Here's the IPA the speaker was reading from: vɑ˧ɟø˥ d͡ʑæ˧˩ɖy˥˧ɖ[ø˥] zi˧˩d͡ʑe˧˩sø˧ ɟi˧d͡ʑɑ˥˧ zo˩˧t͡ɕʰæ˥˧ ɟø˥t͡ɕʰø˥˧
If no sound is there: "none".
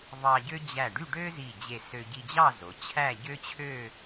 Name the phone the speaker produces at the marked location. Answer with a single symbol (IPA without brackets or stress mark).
ø˥